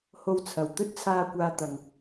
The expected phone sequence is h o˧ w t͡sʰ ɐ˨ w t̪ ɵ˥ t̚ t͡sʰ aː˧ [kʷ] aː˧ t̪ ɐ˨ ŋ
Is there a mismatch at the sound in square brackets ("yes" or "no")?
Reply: no